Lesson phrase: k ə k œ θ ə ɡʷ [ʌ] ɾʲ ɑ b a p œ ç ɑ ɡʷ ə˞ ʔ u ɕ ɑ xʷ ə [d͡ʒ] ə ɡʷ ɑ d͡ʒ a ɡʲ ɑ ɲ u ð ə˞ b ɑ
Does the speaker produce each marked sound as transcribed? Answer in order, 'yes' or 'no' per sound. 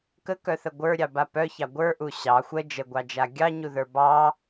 no, yes

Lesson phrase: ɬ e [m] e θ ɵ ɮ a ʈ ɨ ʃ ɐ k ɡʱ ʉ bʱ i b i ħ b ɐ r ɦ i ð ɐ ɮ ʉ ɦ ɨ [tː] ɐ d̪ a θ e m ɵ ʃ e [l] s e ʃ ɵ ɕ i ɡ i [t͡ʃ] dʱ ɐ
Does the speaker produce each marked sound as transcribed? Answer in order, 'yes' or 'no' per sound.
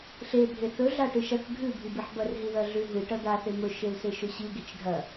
no, no, yes, yes

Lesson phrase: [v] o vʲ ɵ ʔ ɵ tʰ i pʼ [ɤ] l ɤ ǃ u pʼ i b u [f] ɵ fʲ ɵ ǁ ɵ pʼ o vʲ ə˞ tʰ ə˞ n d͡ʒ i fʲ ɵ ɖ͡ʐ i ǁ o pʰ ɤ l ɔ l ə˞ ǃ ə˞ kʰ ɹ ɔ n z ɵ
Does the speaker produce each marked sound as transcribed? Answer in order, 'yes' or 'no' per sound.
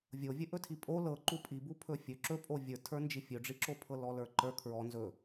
no, no, no

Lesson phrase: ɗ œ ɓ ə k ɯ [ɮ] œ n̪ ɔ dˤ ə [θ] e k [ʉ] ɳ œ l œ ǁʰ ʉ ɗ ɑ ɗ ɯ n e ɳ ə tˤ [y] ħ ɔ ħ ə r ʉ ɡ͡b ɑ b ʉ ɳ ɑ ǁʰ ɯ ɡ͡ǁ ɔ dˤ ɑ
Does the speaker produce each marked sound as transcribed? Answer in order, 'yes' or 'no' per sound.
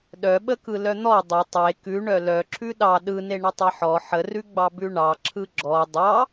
no, no, yes, no

